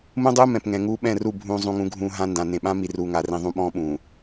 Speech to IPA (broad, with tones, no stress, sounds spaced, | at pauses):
m ũ˦ dˤ uː˦ m ɛ̃˨ p ŋ ɛ̃˨ ŋ uː˦ ɓ ɛ̃˦˨ r u˦˨ bʱ ũː˦ zˤ ũ˦ ŋ ũ˦ ɡʱ ũː˦ ɦ ã˦ n d ã˨ n ẽ˨ ɓ ã˦ m i˨ r uː˨ ŋ a˨ r ĩ˨ ðˤ ũ˦ ɓ ɔ̃ː˦ ɓ ũː˨